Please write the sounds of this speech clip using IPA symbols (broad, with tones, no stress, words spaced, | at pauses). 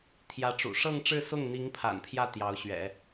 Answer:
t̪ʰjä˧˥ʈ͡ʂṵ˨˩ ʂɤ˥˧ŋʈ͡ʂɻ̩˥˧sʊ˥˩ŋn̪i˧˥ŋ pʰa̰˨˩npʰjä˥˩ t̪jɑ˧˥ʊ̯ɕɥɛ̰˨˩˦